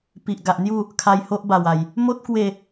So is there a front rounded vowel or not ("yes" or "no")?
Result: no